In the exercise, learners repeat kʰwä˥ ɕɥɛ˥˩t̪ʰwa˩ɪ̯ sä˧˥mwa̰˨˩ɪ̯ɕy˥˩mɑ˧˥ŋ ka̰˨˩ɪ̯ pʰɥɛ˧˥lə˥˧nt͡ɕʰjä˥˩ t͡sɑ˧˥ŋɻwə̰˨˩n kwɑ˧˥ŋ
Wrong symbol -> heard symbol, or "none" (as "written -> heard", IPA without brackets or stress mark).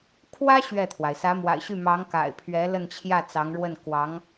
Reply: ə̰˨˩ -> ə˥˩